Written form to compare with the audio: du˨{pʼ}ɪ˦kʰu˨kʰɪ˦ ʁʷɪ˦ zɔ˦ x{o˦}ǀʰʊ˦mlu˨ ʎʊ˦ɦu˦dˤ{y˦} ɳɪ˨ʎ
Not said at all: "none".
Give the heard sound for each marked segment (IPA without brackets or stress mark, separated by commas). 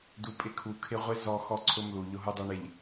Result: pʼ, ɔ˦, e˦